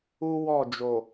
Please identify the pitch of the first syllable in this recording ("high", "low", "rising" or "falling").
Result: high